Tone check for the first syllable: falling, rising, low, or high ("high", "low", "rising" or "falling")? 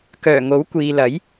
low